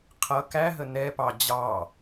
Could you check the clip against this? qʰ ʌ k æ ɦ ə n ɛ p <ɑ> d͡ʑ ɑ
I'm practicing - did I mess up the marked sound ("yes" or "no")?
no